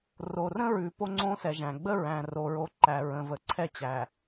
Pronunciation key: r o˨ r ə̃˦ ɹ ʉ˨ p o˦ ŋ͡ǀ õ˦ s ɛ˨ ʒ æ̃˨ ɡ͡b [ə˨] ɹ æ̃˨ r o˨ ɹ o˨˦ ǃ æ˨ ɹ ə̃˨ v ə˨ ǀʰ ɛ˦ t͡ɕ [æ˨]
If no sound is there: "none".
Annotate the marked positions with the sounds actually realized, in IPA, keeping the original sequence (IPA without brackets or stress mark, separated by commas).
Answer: ə˦, æ˨